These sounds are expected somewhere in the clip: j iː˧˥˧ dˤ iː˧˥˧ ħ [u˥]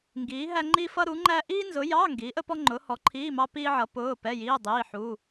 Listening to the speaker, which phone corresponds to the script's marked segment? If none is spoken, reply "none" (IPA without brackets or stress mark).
u˧˥˧